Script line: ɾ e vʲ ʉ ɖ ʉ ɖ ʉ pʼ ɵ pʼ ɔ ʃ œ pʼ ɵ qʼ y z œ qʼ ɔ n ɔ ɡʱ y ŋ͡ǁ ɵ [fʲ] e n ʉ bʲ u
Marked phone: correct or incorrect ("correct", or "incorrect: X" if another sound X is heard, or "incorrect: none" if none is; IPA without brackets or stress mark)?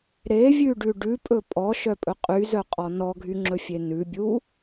correct